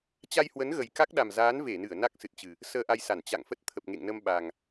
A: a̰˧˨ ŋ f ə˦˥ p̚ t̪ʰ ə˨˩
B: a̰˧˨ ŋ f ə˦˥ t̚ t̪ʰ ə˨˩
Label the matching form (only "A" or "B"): B